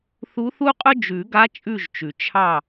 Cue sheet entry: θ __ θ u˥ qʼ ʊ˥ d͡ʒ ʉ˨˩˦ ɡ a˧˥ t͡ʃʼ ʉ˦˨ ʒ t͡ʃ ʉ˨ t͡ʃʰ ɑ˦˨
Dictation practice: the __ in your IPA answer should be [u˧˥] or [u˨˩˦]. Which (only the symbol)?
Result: u˧˥